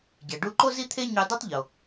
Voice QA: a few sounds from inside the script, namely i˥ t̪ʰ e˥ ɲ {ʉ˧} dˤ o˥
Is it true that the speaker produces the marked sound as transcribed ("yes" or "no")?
yes